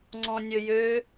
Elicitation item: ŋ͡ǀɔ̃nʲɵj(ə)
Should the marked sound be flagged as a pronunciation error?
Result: yes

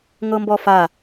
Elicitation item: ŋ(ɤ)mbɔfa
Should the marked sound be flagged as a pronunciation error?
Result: no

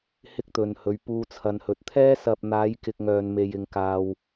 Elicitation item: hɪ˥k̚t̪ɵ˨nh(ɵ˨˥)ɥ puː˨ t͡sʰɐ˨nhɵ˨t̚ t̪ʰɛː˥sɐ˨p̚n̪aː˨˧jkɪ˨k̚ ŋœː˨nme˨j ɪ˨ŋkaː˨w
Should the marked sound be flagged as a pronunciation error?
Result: yes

